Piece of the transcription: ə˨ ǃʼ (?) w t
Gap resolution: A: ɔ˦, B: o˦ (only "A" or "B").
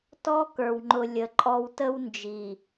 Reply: A